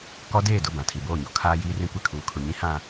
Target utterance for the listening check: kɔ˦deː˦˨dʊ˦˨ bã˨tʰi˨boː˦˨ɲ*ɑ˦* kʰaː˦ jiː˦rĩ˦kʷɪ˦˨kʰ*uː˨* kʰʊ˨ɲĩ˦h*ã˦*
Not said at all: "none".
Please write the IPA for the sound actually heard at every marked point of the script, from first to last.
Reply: ɔ˦, uː˨, ã˨

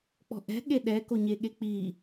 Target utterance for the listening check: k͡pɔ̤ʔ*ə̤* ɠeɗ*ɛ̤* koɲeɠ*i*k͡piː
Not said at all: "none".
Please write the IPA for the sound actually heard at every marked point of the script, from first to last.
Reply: ɛ̤, ɛ, e

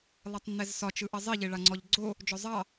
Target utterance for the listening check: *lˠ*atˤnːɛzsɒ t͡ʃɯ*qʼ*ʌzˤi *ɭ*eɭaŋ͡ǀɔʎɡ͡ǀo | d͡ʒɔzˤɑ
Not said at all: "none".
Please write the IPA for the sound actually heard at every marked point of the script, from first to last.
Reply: lˠ, ʔ, ʎ

